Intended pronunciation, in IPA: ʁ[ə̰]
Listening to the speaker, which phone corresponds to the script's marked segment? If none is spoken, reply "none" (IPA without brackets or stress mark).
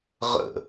ə̰